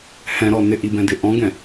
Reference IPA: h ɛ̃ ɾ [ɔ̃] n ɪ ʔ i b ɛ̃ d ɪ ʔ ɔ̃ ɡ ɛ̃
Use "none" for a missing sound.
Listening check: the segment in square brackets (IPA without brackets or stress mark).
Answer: ɔ